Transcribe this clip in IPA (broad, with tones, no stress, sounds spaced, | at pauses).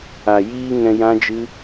a˨ j iː˧ ŋ ɛ̃˧ j ã˦ d͡ʒ ɨ˦